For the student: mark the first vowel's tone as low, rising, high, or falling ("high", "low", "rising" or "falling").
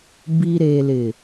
low